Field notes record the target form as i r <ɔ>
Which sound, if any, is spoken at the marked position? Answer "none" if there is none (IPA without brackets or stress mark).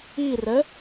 ə